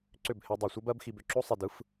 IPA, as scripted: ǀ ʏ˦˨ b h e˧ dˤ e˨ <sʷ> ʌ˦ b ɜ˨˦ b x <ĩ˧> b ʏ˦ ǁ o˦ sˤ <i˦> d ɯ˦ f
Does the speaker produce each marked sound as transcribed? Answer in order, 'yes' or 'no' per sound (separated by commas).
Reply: yes, no, no